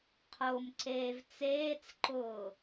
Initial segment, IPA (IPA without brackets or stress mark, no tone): qʰ